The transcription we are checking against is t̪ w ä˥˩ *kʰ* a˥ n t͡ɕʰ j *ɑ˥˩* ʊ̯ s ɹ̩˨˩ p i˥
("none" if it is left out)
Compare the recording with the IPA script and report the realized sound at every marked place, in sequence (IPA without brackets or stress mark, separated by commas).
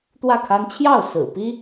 kʰ, ɑ˥˩